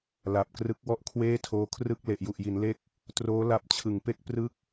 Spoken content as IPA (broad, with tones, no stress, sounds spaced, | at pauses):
l a˨˩ p̚ k r ɯ˦˥ k̚ w ɔ˥˩ ʔ kʰ w eː˥˩ tʰ oː˦˥ kʰ r ɯ˥˩ k̚ l e˨˩ ʔ j u˨˩ ʔ j i˩˦ n l e˦˥ k̚ | t r oː˦˥ l a˦˥ p̚ t͡ɕʰ ɯ˨˩ ŋ p e˥˩ k̚ p r ɯ˥˩ k̚